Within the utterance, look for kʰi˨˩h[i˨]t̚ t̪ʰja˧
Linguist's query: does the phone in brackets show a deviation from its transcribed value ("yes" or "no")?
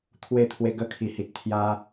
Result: no